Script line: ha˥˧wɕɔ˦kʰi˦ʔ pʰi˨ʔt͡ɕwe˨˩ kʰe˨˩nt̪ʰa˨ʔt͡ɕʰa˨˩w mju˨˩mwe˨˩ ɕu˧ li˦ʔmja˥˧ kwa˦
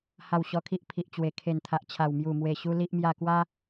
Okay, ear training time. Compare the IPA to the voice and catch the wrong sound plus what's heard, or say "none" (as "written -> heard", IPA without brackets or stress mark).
none